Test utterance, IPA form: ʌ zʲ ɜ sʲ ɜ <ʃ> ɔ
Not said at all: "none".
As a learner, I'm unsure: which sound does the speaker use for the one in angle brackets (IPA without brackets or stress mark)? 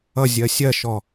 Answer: ʃ